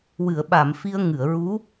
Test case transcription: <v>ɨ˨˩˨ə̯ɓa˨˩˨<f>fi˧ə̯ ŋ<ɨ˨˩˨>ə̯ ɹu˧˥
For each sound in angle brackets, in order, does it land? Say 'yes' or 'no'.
no, no, yes

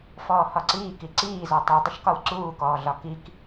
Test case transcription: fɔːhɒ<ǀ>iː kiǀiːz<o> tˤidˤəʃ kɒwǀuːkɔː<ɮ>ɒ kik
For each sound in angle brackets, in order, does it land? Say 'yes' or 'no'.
yes, no, yes

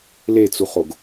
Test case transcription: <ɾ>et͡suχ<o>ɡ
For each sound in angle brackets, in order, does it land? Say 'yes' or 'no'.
no, yes

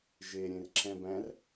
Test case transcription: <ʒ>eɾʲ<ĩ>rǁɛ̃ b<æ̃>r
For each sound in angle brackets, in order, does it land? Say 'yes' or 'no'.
yes, no, yes

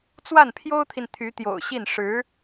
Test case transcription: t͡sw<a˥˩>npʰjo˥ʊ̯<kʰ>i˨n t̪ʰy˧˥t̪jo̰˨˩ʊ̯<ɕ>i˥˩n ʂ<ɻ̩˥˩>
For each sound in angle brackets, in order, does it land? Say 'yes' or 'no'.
yes, no, yes, no

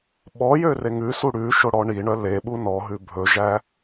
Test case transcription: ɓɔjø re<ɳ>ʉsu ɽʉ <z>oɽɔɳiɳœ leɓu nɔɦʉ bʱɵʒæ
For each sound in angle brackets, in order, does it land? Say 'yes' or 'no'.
no, no

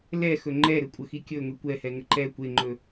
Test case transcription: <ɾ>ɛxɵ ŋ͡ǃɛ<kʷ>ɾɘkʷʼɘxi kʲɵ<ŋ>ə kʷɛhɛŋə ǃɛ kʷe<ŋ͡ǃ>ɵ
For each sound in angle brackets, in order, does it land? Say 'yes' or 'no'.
no, no, yes, yes

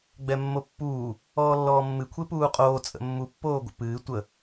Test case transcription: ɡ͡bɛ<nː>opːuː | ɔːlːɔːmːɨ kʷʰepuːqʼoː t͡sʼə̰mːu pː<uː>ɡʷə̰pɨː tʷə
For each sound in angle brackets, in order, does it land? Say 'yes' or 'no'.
no, no

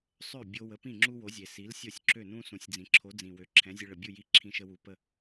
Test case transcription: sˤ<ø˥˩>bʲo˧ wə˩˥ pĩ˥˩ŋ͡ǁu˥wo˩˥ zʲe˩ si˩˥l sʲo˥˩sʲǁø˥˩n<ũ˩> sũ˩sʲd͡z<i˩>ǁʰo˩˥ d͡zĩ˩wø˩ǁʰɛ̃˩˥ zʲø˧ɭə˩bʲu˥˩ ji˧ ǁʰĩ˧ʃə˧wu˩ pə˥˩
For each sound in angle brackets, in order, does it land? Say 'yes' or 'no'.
yes, no, no

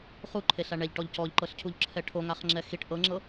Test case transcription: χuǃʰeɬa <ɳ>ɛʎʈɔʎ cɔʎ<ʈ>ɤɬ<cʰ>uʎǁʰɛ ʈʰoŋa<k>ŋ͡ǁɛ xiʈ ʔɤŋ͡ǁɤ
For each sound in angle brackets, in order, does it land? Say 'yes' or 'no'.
yes, no, yes, no

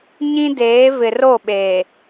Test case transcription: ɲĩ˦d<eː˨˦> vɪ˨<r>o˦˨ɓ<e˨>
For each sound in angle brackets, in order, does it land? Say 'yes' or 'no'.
yes, yes, no

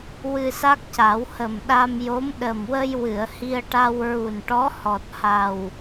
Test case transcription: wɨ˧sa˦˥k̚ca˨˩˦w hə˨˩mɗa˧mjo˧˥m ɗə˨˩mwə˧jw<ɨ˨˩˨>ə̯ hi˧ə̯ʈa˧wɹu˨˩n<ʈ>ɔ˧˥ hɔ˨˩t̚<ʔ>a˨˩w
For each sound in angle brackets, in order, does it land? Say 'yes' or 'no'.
yes, yes, no

